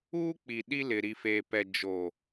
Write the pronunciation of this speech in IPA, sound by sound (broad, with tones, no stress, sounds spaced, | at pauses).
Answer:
uː˦ k͡p i˨ ɗ i˦ l ɪ˨ ɾ i˨ f eː˨ p ɛ˨ d͡ʒ o˨